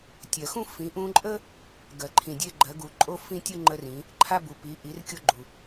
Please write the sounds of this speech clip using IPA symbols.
tʲ ɜ˩ x ũ˥ f ĩ˩˧ ʔ ũ˧ ǃʼ ə˥ | ɡ ɜ˩ ǃʰ ĩ˩ dʲ e˧ ɡ͡ǃ ɜ˩˧ ɡ u˩ ǃʼ o˧ f ĩ˥ tʲ u˥ ŋ͡ǃ ə˧ r ĩ˩˧ | ǃʰ a˧ b u˩ p i˩˧ ʔ i˩˧ r kʲ o˧ ɡ͡ǃ u˩

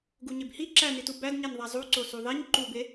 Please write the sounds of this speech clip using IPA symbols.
ɡ u ɲ e b h i ǁ æ n i t u b æ d ɲ e n ðˤ æ zˤ u ǀ o s u ðˤ e ɲ ǃ u b e

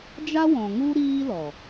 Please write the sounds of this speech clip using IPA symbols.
d͡ʒ a˦ w ɔ̃˨ ŋ u˦ ɾ iː˦ l ɔ˨

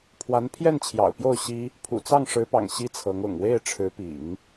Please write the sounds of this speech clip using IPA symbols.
pʰ w a˧˥ n pʰ j ɛ˥˩ n t͡ɕʰ j ɑ̰˨˩ ʊ̯ p j o˥˩ ʊ̯ ɕ i˥ | pʰ ṵ˨˩ t͡s ɑ˥˩ ŋ ʂ ɻ̩˧˥ p ɑ̰˨˩ ŋ ɕ i˥ t͡sʰ ɤ˧˥ ŋ ʊ̰˨˩ ŋ w e˥˩ ɪ̯ ʈ͡ʂʰ ɻ̩˧˥ p ḭ˨˩˦ ŋ

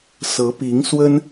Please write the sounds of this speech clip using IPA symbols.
s ɤ˧˥ p i˧˥ ŋ s w ə˥ n

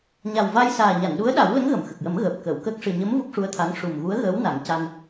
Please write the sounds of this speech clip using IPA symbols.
ɲ a˨˩ w v a˧ j s aː˨˩ ɲ a˨˩˨ n ɗ u˧˥ ə̯ ɗ a˨˩˦ w l ə˧˥ ŋ ɣ ə˨˩˨ m x ə˨˩ k̚ j ə˨˩˦ m ɣ əː˨˩ p̚ k əː˨˩˨ w k əː˦˥ k̚ ʂ ɨ˨˩ ɲ ə˧˥ m v u˦˥ k̚ ʂ u˧˥ ə̯ t̪ʰ a˧˥ ŋ ʂ u˨˩ m ɣ u˧˥ ə̯ ɣ əː˧˥ w n a˨˩˦ ŋ c a˧ n

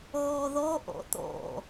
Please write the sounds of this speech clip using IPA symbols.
ɣ ɔ ð ɔ ʔ ɔ̰ t̪ ɔ̰

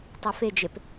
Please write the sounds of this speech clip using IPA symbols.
tˤ ɛ f e d͡ʒ e p

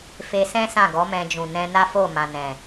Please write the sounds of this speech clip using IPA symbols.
f e˧ s ɛ̃˦ s ã˦˨ ɡ ɔ˨˦ m ɛ̃˧ d͡ʒ ũ˨ n ɛ̃˧ n a˦ f o˦˨ m ã˨ n ɛ̃˨

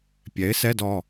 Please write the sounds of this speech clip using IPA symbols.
pʲ ɛ˩˥ ɪ̯ s ɛ˧˥˧ d ɔ˩˧˩

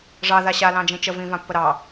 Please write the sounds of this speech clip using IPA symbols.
ʐ ɑ ð a ɕ a l ɑ̃ d͡ʒ ĩ t͡ʃ ə v ĩ v ã pː ə ɾ ɑ

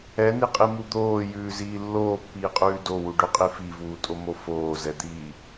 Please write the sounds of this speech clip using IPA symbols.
ɛ n i qʼ i m u d̪ oː j ʉː z iː lː oː pː iː qʼ ʉː d o w u ɖ ʉ qʼ i f i v uː tʼ o m o f oː z ɛ d̪ iː

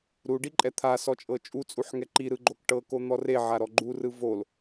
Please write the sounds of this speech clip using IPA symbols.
ɾ u ɖ i ǃʼ ɛ t̪ʰ a s ɔ t͡ʃʼ ɤ t͡ʃʼ u t͡sʼ u ħ ŋ ɛ ǃ i ɾ ɯ ɡ͡ǃ o k ʈ ɤ k o n̪ ɔ r e ʕ a ɾ ɔ ɡ͡ǃ u r ɯ v o l

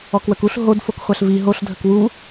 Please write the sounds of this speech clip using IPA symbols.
ɔ k w ə k u ɬ ɦ o d f o k χʷ a ɬ v i ɦ o ɬ dʱ ə k w u

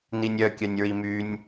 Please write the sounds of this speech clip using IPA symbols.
n i nʲ œ kʲ œ nʲ ɹ i m y nʲ

